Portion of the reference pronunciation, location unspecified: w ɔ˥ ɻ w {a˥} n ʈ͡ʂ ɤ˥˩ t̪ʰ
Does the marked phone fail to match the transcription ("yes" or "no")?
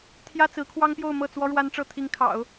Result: no